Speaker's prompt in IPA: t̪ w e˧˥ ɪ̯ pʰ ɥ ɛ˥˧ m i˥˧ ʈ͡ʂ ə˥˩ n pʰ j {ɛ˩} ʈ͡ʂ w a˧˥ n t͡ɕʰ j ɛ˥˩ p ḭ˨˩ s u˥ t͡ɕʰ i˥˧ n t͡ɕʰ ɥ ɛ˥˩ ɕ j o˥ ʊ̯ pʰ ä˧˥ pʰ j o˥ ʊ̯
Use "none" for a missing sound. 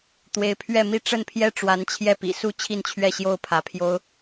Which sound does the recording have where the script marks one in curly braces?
ɛ˥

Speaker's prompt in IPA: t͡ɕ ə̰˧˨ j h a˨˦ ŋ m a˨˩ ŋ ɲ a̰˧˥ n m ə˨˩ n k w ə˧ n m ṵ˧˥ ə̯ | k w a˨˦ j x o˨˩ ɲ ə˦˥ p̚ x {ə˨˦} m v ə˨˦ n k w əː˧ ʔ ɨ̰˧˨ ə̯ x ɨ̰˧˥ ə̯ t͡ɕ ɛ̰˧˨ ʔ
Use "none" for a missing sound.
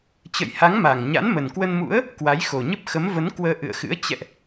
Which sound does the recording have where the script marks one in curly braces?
ə˨˦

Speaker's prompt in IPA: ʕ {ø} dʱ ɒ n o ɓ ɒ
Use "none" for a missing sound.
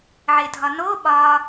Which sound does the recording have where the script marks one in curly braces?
e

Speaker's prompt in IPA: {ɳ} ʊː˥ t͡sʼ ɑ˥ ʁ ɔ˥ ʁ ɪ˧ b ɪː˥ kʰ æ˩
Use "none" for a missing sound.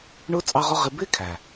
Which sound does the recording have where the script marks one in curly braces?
ɳ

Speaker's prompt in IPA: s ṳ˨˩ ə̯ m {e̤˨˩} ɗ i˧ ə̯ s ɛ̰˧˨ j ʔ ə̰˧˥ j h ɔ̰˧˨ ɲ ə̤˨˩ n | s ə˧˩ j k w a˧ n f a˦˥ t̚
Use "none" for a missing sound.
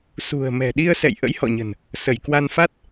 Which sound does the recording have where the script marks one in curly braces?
ɛ̤˨˩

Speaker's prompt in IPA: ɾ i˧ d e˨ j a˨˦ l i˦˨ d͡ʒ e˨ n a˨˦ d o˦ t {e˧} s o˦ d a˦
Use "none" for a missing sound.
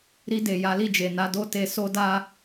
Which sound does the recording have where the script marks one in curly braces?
e˧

